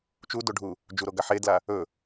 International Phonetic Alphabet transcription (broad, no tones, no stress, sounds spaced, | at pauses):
t͡ʃ u d o ɖʱ u | d͡ʒ u ɾ o ɡ a ħ e d l a | ɵ